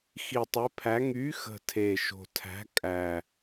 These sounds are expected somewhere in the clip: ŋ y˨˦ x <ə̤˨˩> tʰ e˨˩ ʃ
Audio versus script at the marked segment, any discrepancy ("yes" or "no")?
no